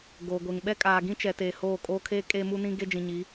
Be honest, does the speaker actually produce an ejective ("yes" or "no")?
yes